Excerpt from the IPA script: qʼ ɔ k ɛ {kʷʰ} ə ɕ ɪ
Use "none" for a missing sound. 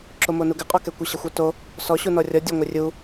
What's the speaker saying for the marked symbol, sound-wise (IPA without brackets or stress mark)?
kʷ